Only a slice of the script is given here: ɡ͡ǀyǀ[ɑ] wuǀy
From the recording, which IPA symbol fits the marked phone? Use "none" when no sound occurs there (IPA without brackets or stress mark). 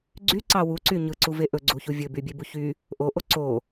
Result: ɑ